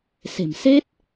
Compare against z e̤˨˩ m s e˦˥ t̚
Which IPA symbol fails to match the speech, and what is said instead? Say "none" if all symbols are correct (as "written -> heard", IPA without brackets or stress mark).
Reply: z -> s